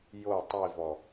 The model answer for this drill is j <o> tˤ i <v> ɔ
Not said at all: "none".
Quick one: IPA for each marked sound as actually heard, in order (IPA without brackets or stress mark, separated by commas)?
o, v